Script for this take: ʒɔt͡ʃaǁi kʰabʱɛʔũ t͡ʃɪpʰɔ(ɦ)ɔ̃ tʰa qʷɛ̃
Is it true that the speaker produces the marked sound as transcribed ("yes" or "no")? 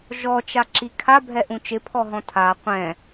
yes